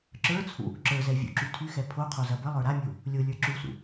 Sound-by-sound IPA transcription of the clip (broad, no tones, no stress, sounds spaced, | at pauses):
ǁ ə˞ t͡sʰ ṵ | ǁ ə˞ z ɛ vʲ ṵ ǁ y tʰ y x ɛ pʰ o qʰ o z ɐ b ə lˠ ə˞ ɾ a mʲ u | lʲ o lʲ ə˞ ǁ u s ṵ